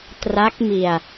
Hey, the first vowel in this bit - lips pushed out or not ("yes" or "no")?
no